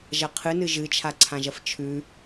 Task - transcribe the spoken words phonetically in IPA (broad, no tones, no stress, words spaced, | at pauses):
ʒɐqʰɨnɨ ʒɨt͡ʃʰaǀʰãʒɐf t͡ʃʰʉ